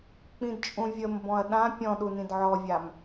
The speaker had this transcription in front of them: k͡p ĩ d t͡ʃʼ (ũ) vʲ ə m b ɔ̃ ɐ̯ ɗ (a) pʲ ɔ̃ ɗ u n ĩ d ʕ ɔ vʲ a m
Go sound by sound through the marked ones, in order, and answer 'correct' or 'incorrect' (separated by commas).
correct, incorrect